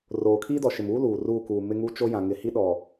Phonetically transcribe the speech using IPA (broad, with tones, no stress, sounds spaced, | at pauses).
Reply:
r oː˨ kʰ i˦ d ɔ˨ ʃ ɪ˨ m uː˦ l uː˨ r uː˦˨ k uː˨ m ɪ˦ ŋ u˦ t͡ʃ o˦ j ã˨ ŋ ɪ˨ h i˦ ɗ ɔ˨